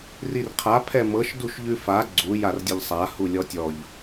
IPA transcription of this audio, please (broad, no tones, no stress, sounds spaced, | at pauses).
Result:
r i r qʰ a pʰ ɛ m ɤ ʃ d u ʃ ʎ ʉ f a ɡ͡ǀ u j a r dʲ ə ʎ sˤ a h u lʲ ɔ tʲ ɔ ʎ